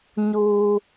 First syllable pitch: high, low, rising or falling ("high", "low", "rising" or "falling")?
low